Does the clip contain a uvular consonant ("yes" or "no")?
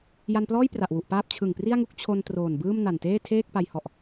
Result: no